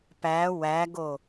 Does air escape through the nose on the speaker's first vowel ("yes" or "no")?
no